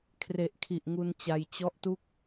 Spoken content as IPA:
kʰ r e˨˩ ʔ kʰ i˨˩ ʔ ŋ u˧ n t͡ɕ a˧ j t͡ɕ ɔ˦˥ ʔ t u˥˩ k̚

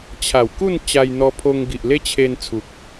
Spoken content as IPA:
t͡ɕʰ a˨˩ w k u˥˧ n t͡ɕ a˧ j n̪ ɔ˧ pʰ o˧ ŋ ɡ i˨ ʔ l e˦ t͡ɕʰ e˧ n t͡sʰ u˨ k̚

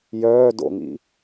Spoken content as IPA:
j œː d o̰ ŋ ḭ

